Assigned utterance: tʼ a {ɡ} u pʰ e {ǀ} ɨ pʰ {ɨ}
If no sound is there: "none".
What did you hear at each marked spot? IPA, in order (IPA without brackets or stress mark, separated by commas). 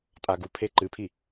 ɡ, ǃ, i